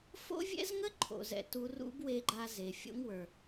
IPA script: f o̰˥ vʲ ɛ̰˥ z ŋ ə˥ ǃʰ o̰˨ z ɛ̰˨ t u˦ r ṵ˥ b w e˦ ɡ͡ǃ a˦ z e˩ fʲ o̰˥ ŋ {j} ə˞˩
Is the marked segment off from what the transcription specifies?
yes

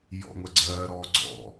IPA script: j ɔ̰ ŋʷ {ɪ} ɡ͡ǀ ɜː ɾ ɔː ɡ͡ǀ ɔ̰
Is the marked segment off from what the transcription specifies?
yes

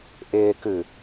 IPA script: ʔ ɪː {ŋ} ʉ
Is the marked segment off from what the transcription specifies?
yes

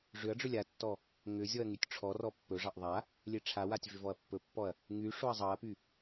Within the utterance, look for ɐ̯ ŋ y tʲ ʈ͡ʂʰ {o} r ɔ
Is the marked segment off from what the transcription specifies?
yes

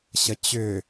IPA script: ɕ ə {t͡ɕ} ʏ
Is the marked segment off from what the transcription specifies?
no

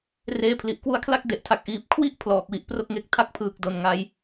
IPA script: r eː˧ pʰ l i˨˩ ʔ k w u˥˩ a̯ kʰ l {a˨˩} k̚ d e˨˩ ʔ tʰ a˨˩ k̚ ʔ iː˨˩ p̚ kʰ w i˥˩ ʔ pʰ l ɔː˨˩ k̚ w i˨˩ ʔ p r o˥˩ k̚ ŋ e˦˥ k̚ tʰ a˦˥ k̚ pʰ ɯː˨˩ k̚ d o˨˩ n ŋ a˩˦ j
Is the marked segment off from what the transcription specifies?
yes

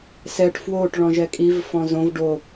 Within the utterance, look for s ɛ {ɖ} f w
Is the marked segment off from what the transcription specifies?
yes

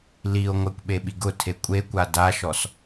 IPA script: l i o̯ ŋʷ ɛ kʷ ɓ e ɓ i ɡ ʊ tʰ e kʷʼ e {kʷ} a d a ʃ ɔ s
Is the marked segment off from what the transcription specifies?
no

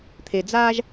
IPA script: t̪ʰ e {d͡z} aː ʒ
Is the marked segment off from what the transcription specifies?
no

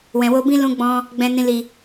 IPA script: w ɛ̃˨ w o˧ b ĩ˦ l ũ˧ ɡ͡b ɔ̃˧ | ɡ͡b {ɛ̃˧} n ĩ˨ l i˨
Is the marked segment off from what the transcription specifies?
yes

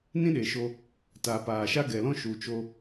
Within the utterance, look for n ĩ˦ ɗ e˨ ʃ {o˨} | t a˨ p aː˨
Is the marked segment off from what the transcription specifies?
yes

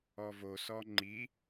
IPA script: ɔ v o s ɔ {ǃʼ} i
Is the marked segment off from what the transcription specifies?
yes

